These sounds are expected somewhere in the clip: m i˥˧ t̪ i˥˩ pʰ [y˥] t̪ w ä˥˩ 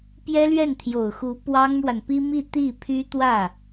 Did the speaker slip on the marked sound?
no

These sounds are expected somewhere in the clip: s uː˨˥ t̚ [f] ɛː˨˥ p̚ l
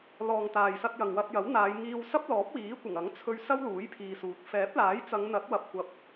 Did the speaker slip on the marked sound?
no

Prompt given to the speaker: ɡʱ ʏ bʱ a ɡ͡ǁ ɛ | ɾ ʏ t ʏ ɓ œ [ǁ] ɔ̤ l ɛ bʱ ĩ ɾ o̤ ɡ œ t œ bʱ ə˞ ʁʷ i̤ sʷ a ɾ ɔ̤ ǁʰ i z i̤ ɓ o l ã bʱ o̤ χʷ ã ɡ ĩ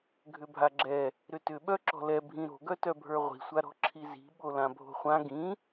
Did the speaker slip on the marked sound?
no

